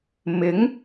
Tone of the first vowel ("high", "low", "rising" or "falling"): rising